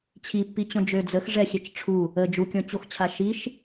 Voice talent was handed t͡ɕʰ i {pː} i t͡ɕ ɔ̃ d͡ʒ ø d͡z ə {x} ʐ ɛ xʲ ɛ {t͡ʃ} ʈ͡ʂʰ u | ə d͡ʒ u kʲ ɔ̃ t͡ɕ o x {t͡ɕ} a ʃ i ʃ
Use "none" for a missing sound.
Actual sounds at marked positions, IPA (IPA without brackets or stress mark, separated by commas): pː, x, t͡ʃ, t͡ɕʰ